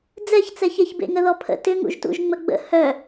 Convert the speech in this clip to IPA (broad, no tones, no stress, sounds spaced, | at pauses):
d͡z ɛ ç t͡s ɛ ç e ç b ḛ ŋ ə ð ɔ pʰ ə̰ t ʏ ŋ ṵ ʒ t ṵ ʒ ŋ͡m ə ɡ͡b ə̰ h œ